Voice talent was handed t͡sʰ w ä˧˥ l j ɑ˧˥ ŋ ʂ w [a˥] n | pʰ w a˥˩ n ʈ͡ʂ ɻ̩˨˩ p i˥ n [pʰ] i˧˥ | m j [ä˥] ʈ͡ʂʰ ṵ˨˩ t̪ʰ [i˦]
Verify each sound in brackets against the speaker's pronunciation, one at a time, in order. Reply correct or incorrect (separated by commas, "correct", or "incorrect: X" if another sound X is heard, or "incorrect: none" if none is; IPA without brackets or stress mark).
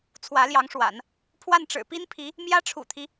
incorrect: a̰˨˩˦, correct, correct, correct